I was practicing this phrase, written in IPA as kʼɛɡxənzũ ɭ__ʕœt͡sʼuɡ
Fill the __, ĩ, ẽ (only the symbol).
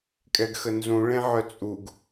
ẽ